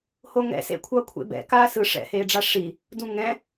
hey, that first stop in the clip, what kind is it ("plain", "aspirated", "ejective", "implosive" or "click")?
aspirated